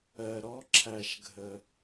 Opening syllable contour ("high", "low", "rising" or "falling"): low